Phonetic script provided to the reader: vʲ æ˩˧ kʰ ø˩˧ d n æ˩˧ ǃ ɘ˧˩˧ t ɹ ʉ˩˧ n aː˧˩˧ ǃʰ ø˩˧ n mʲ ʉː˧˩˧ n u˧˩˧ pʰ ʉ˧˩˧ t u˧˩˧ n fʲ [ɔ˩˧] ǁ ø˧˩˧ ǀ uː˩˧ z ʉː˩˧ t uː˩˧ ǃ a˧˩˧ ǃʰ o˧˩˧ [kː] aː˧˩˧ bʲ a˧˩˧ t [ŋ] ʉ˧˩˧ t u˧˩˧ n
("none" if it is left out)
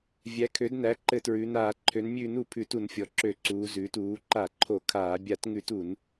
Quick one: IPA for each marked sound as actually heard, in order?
ɔ˩˧, kʰ, ŋ

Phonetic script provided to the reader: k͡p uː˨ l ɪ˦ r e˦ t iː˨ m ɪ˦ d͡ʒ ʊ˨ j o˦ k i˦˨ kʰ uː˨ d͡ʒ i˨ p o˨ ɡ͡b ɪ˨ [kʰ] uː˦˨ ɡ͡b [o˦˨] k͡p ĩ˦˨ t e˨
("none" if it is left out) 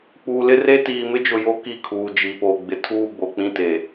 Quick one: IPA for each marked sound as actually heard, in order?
tʰ, o˨

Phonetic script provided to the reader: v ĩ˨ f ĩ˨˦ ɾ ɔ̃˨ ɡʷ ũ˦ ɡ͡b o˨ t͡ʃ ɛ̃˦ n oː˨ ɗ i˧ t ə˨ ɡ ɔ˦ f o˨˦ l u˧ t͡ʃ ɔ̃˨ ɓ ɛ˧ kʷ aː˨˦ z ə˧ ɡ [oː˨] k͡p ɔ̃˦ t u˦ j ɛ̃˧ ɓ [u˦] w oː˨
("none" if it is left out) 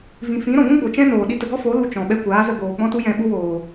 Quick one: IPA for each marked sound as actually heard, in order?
oː˨, u˦

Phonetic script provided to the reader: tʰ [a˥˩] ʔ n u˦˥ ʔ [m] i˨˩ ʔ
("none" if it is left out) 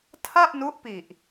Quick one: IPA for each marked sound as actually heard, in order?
a˥˩, p

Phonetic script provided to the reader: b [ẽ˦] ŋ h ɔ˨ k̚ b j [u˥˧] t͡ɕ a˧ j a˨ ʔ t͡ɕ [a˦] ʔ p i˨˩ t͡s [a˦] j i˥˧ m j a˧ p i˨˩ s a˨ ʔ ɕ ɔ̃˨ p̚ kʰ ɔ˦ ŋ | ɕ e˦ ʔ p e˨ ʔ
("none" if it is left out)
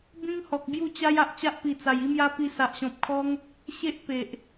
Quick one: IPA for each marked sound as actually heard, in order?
ĩ˦, u˥˧, a˦, a˨˩

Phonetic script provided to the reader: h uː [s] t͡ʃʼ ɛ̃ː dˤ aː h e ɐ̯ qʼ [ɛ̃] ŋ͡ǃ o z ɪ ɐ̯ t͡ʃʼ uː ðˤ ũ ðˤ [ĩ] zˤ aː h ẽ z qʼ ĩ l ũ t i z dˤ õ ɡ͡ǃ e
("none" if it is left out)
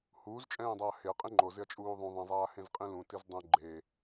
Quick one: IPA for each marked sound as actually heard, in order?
z, ẽ, ĩ

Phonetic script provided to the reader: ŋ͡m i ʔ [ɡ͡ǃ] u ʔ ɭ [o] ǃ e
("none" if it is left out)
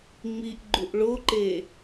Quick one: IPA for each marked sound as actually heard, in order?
ɡ͡ǃ, o

